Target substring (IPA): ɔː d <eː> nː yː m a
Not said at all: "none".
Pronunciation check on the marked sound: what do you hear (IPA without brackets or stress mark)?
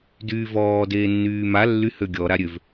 eː